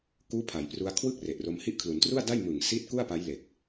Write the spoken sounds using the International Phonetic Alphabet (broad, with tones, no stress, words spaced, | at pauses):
kuː˦˥pʰa˩˦j pru˧a̯kʰwɯ˥˩k̚re˨˩ʔro˧m hi˦˥ʔkʰlu˩˦ntru˥˩a̯da˥˩j mɯ˨˩ŋ si˦˥t̚ ku˥˩a̯pa˦˥j le˨˩k̚